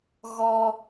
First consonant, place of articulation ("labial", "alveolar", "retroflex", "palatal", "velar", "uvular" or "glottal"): velar